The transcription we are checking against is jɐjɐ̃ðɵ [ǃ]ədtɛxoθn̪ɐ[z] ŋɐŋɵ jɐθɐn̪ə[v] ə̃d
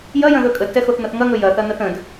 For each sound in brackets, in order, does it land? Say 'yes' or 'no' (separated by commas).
no, no, no